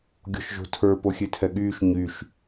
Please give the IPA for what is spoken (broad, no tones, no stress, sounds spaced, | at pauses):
ɡʲ ɔ̤ ʃ ʒ o̤ tʰ ə˞ p o xʲ e tʰ ɛ ɠ yː ʃ ɲ y ʃ